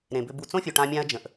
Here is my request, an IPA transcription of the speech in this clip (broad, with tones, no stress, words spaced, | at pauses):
ɾẽ˨bʏ˧b u˨t͡sõ˦fʲu˨ ʈã˧mʲã˧ɐ̯d͡ʒə̃˨ʔ